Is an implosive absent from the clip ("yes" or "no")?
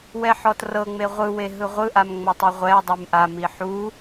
yes